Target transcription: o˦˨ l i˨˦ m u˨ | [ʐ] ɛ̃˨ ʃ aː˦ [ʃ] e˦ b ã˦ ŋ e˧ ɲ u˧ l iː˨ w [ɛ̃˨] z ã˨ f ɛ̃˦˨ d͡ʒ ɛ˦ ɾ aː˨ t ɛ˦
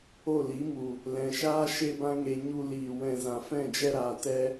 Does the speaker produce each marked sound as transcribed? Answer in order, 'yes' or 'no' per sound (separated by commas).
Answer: no, yes, yes